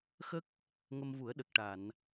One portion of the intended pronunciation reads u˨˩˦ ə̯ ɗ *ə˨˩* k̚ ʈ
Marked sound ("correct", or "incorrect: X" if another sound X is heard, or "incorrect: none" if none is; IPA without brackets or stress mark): correct